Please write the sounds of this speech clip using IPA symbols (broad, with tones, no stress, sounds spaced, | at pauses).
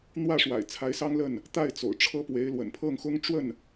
n̪ w ä˥˩ ʂ w a̰˨˩ ɪ̯ t͡sʰ a˧˥ ɪ̯ s ɑ˥ ŋ l ə˥˩ n | t̪ a˥˩ ɪ̯ t͡s o̰˨˩ ʊ̯ ʈ͡ʂʰ ɤ˥ p w e˧˥ ɪ̯ l w ə̰˨˩ n pʰ ɤ˥˩ ŋ x ʊ˥ ŋ ʈ͡ʂ w ə˥˩ n